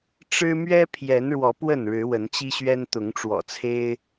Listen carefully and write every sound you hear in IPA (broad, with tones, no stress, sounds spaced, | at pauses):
ʈ͡ʂ ɻ̩˦ m ɥ ɛ˦ pʰ j ɛ˨˦ n ɻ w ɔ˨˦ p w ə˥˨ n ɻ ɻ̩˨˦ w ə˨˦ n t͡ɕ i˦ ɕ ɥ ɛ˦ n t̪ ʊ˨˦ ŋ ʈ͡ʂ w ɔ̰˨˩ t͡sʰ e˦ ɪ̯